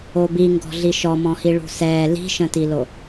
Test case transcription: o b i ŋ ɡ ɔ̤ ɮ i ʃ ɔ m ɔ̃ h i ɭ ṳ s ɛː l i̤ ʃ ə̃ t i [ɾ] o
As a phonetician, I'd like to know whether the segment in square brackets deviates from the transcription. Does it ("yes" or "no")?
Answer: yes